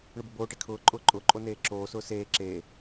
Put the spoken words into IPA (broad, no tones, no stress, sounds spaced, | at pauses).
ɳ ʊ b ʊ b oː ʈ e kʰ ʊː ǃʼ ʊː ǃʼ ʊː ǃʼ o n eː ǁ oː s ʊː s eː ǁ e